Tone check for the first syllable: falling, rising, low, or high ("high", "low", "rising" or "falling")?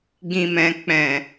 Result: low